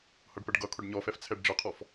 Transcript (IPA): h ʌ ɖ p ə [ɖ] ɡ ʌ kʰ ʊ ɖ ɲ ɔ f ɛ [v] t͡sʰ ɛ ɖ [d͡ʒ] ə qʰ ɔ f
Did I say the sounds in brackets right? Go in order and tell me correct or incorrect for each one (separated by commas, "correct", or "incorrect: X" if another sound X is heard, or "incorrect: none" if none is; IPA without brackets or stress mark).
correct, incorrect: f, correct